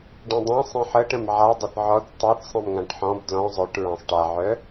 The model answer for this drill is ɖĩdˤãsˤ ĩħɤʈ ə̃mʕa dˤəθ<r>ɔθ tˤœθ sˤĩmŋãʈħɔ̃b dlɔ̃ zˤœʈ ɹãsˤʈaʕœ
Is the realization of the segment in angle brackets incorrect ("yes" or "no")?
yes